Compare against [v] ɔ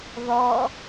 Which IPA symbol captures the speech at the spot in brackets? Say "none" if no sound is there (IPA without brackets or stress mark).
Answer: ð